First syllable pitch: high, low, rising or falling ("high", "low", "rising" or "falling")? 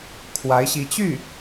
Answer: rising